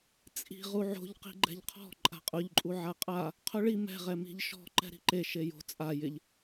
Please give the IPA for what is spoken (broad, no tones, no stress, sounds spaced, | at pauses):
t͡sʼ i̤ ʁ u ʕ o̤ ʎ q i̤ ɡ͡ǃ ɛ̤ ʎ qʰ ɔ̤ ǃʼ a̤ qʼ ʊ ʎ ǃʼ u ʕ a qʼ a | qʰ ʊ ɭ i m ɛ̤ ʁ ɛ m i̤ ʎ ʃ ɔ̤ ǃ ɛ̤ ɾ i̤ ǃ e ʃ e j o̤ t͡sʼ a j ɪ ʎ